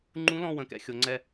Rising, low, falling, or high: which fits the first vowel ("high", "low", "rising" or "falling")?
rising